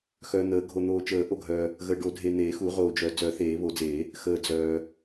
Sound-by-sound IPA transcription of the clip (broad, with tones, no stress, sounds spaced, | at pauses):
x œː˨ n̪ əː˨˩˦ ɡʱ o˨ n̪ oː˨ t͡ʃ əː˨˩˦ ʔ o˨ ɡʱ œː˨ | ɣ əː˨ ɖ o˨˩˦ dʱ e˨ n̪ eː˨˩˦ x u˨˩˦ ʁ oː˨ d͡ʒ œ˨˩˦ d͡z œ˨˩˦ θ eː˨˩˦ β o˨˩˦ d͡z eː˨˩˦ | x əː˨ d͡z œː˨